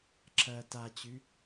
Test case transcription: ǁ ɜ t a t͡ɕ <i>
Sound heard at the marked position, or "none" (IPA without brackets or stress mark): y